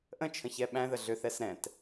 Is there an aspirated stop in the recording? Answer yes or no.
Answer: yes